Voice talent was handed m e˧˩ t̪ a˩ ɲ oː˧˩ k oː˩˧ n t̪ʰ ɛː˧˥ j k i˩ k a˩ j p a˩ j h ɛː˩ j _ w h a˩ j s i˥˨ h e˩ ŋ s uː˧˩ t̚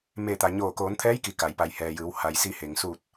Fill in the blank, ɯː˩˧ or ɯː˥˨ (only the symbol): ɯː˩˧